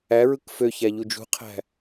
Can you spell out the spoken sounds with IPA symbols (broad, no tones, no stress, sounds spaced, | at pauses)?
æ ɹ ɯ k f ø ç æ ʎ u d͡ʒ ṳ qʰ æ̤